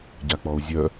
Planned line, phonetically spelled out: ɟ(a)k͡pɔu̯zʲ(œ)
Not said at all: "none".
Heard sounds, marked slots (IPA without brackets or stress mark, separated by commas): a, œ